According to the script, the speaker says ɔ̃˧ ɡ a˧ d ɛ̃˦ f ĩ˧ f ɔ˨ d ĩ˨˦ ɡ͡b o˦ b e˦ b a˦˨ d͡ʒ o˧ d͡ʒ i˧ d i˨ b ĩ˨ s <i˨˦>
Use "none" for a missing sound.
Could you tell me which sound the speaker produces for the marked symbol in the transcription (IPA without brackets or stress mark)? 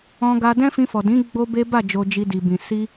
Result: i˧